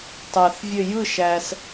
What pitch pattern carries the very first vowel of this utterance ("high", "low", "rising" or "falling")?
low